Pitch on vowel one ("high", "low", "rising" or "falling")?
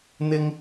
high